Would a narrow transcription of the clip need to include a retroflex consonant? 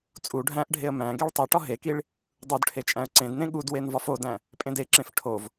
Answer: yes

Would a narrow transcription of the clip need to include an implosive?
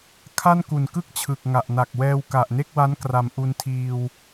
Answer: no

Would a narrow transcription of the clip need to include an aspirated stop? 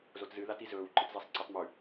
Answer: no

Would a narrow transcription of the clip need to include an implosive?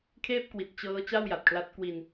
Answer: no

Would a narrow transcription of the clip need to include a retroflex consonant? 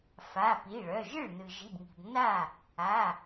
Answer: yes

